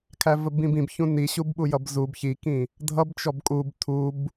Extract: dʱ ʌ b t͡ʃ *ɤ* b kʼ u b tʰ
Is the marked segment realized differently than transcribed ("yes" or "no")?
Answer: yes